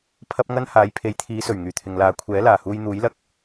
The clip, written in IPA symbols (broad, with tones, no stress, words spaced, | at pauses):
pʰɐ˥p̚ŋɐ˥n haː˨˧jpʰe˨˧jt̪ʰiː˨˧sɵ˨˩ɥ ŋyː˨˩t̪ʰɪ˨ŋlaː˨˧ kʷʰɛː˨˥laː˨˩huː˧jn̪uː˨˥j lɐ˧k̚